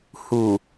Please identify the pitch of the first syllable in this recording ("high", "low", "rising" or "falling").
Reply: low